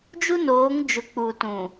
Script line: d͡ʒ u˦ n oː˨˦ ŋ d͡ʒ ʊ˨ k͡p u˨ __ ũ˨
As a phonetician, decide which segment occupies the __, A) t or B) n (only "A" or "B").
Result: A